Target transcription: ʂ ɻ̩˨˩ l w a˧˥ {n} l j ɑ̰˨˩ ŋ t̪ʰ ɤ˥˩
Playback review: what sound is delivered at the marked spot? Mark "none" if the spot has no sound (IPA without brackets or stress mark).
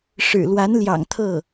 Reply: n